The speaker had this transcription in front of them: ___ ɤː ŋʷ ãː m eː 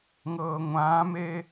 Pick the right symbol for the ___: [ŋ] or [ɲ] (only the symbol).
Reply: ŋ